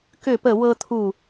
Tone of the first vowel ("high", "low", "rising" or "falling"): falling